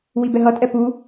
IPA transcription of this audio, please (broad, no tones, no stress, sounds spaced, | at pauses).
w i b ɛ ɦ ʌ tʼ ɛ p u